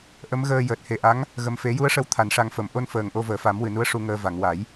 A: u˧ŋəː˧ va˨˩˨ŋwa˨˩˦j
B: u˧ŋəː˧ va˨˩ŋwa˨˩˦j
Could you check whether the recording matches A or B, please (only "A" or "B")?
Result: A